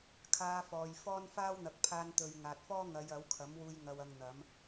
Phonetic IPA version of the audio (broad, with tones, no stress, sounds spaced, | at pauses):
kʰ aː˧ f ɔː˨ j f ɔː˥ n f aː˥ w n̪ ɐ˨˥ k̚ pʰ aː˧ n t̪ ɵ˨ ɥ ŋ aː˨ t̚ f ɔː˥ ŋ ɐ˨˧ j ɐ˨˥ w kʰ ɐ˨˥ m w uː˧ j ŋ ɐ˧ w ɐ˧ ŋ n̪ ɐ˨˥ m